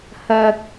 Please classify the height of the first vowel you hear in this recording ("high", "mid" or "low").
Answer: low